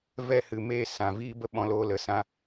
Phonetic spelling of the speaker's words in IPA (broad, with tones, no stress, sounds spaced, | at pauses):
v ɛ˦˨ h ɨ˨ m e˦˨ s ã˨ v iː˦ b ə˦ ɓ ɔ̃˧ l oː˧ l ə˨ s ã˦